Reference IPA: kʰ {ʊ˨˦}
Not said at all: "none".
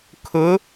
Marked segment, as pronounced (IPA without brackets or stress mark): ʊ˨˦